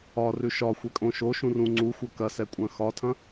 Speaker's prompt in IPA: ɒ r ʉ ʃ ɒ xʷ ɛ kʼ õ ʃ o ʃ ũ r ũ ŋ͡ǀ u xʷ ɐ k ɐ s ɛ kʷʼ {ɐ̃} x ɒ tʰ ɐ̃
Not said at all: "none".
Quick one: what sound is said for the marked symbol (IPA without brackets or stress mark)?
ɐ̃